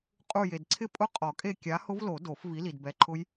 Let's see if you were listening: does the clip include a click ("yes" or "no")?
yes